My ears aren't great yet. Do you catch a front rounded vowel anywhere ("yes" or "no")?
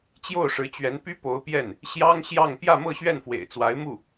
yes